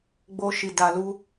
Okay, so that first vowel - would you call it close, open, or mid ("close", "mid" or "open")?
mid